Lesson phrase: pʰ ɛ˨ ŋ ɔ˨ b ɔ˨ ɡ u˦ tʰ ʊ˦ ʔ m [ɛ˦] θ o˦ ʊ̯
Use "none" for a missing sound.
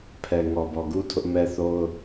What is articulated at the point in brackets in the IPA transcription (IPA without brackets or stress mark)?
ɛ˦